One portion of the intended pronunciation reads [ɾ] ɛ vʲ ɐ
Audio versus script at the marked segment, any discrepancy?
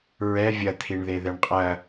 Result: yes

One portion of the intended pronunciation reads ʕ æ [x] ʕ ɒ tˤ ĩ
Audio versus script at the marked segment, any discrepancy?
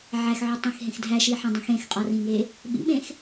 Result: no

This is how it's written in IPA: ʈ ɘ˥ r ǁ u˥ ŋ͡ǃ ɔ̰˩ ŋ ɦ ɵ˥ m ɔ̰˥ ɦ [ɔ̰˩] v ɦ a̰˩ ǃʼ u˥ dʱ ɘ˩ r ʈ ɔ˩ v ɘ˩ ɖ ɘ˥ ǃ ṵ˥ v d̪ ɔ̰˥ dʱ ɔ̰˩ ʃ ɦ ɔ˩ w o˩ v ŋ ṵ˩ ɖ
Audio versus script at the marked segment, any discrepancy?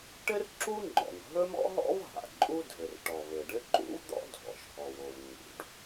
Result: yes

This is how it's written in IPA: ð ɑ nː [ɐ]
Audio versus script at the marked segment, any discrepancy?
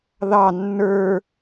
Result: yes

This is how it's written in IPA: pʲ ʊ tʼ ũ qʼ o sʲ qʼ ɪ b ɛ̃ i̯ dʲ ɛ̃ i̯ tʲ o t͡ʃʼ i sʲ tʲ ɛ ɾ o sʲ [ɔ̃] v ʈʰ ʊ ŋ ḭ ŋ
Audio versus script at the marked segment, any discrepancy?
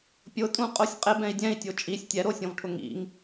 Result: no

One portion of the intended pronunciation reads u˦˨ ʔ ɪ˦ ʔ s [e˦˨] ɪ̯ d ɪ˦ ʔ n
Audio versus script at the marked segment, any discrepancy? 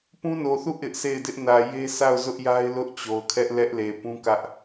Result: no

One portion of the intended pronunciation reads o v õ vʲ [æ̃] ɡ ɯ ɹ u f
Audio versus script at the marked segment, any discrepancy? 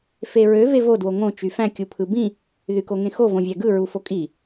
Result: yes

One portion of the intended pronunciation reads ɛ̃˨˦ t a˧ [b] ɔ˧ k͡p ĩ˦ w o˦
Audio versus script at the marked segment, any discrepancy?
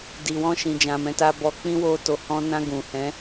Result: no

